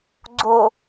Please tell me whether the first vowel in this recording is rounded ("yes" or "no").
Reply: yes